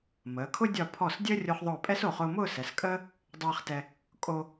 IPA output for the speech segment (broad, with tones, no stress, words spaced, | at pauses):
məː˩˧kʰʊ˥ dʲɒ˧˩pʰɔ˧˩s dʲəː˥rʲo˧χðˤʊː˧˩pʼɛ˥s o˧˩χʊː˧mʊː˥˧ sɛ˩˧s kʼəː˥ | dˤɛː˧χtɛ˧ | kʼo˧